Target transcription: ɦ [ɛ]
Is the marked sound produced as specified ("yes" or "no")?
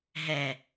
yes